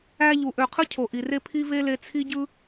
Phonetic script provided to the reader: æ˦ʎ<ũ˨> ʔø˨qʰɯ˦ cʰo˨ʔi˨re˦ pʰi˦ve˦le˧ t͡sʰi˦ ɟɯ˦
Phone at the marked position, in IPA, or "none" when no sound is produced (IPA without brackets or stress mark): u˨